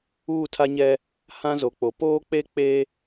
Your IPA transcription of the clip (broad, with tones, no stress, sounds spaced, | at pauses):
uː˦˨ tʰ a˦ ɲ ɛ˦ | h ã˦ z o˨ k͡p o˨ p oː˦ k͡p e˦ k͡p e˦